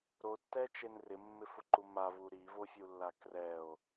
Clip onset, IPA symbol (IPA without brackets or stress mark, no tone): ɾ